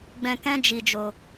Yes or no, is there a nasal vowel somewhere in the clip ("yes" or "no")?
yes